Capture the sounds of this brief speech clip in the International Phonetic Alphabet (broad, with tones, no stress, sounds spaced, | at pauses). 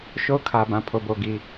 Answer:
ʃ o˦ ʊ̯ kʰ ä˨ b ã˨ pʰ o˨ b o˨ ɡ i˨